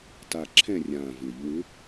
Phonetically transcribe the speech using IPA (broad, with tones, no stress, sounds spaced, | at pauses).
t a˨˩ ǁʰ ɛ̃˦˨ rʲ ãː˨˩ v ɪː˧˩˧ ʎ w ɪ˧˥